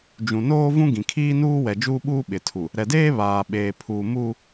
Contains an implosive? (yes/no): yes